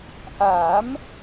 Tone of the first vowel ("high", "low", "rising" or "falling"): rising